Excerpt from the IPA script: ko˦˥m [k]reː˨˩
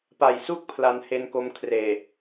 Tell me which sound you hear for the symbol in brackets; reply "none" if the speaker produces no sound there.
kʰ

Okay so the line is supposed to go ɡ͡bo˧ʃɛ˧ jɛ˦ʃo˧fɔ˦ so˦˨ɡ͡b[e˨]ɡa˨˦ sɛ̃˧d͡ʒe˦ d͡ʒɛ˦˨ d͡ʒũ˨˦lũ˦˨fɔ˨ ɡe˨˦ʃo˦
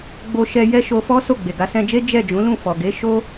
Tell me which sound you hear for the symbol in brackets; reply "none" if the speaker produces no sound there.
e˨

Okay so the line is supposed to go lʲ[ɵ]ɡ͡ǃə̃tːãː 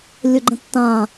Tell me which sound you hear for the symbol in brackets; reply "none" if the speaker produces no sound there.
ɵ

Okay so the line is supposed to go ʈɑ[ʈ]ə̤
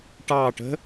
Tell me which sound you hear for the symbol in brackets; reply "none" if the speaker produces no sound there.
ʈ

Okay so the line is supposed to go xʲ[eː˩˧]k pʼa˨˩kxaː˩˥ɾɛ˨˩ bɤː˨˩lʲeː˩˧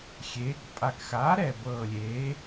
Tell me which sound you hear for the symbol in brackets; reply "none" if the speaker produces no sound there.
eː˩˧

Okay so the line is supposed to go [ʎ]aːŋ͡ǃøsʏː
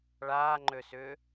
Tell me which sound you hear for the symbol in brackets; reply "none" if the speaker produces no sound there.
ɭ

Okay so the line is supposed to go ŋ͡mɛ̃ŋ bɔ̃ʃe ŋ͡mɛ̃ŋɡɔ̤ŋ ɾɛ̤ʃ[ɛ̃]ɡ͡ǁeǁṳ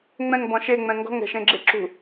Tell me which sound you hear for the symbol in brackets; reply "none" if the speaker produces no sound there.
ẽ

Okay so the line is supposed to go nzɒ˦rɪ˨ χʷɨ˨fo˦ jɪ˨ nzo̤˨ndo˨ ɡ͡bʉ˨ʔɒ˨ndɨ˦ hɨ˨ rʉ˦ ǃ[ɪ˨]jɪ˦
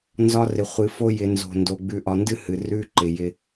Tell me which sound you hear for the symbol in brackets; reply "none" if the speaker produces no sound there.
ɪ˨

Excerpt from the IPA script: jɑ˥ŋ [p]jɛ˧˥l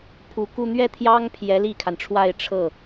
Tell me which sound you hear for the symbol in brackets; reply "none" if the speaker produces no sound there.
pʰ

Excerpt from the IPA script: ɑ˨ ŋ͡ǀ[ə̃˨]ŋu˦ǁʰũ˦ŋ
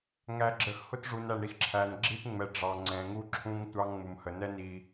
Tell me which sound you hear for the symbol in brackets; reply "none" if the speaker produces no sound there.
ɛ̃˨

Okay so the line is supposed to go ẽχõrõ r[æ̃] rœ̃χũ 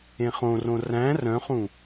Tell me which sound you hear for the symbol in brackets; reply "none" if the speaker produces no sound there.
æ̃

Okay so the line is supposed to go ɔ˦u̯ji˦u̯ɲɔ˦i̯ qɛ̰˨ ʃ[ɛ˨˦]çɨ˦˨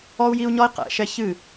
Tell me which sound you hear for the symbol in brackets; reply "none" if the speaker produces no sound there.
ɛ˦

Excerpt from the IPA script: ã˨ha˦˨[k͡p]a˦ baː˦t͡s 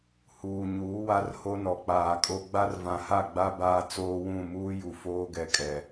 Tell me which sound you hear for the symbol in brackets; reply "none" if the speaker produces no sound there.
ɡ͡b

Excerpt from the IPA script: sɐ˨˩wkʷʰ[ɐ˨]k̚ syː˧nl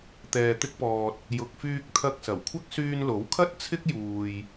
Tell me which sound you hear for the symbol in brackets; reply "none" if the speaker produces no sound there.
ɐ˥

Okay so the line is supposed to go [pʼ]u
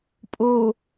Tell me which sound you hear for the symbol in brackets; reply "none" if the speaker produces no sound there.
pʼ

